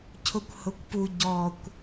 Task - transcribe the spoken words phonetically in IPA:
cʰʊkʷhʊkʷpu ɟɔkʷ

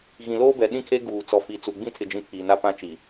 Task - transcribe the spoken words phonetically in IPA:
ɣĩ˨loː˦bɛ˨ ɗĩ˦kʰe˦ ɡuː˨ t͡sɔ˨fi˨t͡su˨ ɡ͡bĩ˦tʰɪ˨d͡ʒĩ˨ pʰiː˨na˦ pã˦t͡ʃi˨

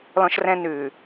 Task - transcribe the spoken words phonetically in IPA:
lɔ̃˦ʃrɛ̃˦nʉː˨

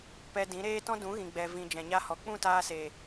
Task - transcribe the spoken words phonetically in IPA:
pɛ˧dĩ˨˦ ɾeː˦tɔ̃˦ dũ˨˦ɣĩ˨ ɡ͡bɛ˨ vĩ˨ d͡ʒɛ̃˨ɲa˧hɔ˨k͡pũ˦˨ taː˧ se˨

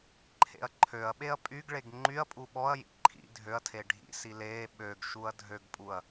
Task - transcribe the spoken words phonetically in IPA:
ǃʰḛɐ̯ǃʰøɐ̯ɓeɐ̯ pʼyɡɭeɡ ŋ͡ǃyɐ̯pʼu ɓɔɐ̯jḭ ǃʰḭ dʱøɐ̯tʰe ɖʱḭsi leː ɓøɡʃuɐ̯ dʱøɡpʼuɐ̯

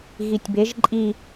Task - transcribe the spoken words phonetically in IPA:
ɣitʲbeʒ ǃʼi

